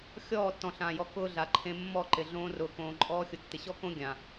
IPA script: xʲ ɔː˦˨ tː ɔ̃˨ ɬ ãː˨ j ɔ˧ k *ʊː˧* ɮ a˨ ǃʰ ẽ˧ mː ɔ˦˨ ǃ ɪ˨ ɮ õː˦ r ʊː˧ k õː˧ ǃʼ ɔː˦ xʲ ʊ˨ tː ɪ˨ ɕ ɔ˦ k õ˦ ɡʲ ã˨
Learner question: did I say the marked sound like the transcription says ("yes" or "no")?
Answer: no